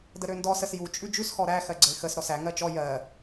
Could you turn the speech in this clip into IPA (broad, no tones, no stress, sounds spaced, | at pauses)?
d ə ɾ ø n d ɔ s ə s j u t͡ʃʼ ʉ d͡ʒ ʉ s x ɔ ɾ æ x ɜ ɡ͡ǀ ə ɪ̯ x ə s ɾ ɔ s æ ŋ ɜ t͡ʃ ɔ j ɜ